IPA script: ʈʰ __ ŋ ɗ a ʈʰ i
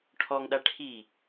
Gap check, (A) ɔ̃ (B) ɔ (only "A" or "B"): B